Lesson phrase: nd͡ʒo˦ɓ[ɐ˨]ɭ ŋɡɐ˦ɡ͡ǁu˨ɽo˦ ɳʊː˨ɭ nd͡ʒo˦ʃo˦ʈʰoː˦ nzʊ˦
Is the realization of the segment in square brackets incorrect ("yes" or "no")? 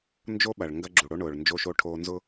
no